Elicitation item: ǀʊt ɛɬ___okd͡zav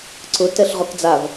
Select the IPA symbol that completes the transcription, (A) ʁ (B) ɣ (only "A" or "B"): A